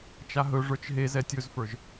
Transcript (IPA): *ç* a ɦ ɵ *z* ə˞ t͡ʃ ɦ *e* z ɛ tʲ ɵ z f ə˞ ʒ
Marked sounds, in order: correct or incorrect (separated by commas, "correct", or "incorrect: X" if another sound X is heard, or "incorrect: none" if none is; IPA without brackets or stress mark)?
incorrect: t͡ʃ, incorrect: ʐ, correct